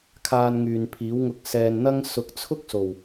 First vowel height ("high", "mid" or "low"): low